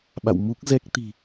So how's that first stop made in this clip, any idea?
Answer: implosive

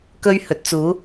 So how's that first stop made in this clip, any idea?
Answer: plain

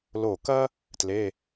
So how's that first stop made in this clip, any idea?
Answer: plain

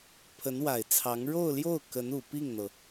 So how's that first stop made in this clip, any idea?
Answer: aspirated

